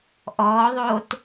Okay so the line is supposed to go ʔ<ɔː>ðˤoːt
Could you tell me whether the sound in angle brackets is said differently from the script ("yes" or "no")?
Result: no